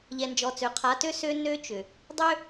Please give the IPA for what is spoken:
ʎɛ˨nd͡ʒɔ˨t͡sø˨ qʰa˨˦tø˦sø˦ nø˦t͡ʃʏ˨ | dˤʏ˦

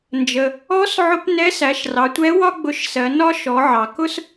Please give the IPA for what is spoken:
nd͡ʒə˩ | ɔ˧˥s ʕʊ˧˥p nɛ˧˥sæ˩˧ʃrɑ˩˧tʷɛ˧˥ wɒ˥ɡ͡bʊ˧˥ʃsɜ˩˧nɒ˥ ʃɔ˩˧ʕɑ˩kʊ˥s

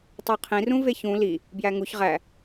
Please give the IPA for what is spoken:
tˤoqʰĩ rũveçũ li | bjæŋuç ʁæ

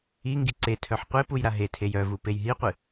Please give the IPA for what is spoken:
iŋɡi ǀetʰœħ qʷepuj ɾaɦetʰej œvu pejɦiqʷɨ

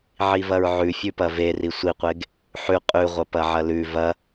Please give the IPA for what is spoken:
ʕivɐɹʕʉfʲʉ pɐveri sʷiqʷeɡ | ħʉ qʼʉʁʷɐ pɐʕɐlʉ vɐ

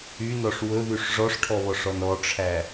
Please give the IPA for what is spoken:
ynɔʂ wɵðyʂ ʐɔʂʈʰɔβɔʂɔn ɔʈ͡ʂʰæ

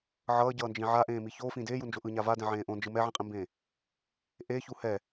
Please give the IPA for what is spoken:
ʕʌːɟʌːnd͡ʒĩ ʕaʔẽːmi çoːfĩ deːjund͡ʒo ʔɯɲa vadɛ̃ʕẽː ʔõnd͡ʒɯ mɛʕĩqʼĩmbẽː | ʔeçu hɛ

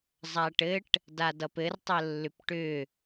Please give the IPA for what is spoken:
zˤaʈɘʈ | dadʌpɘr tˤəlːʏpʈʏ

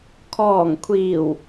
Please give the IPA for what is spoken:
kʰɔː˨˩ŋkʷʰiː˨˩w

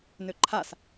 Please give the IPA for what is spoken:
nøǃʰas

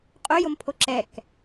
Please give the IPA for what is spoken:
qʼojompʰo ǁɛk

